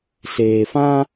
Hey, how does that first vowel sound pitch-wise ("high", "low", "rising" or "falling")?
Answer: low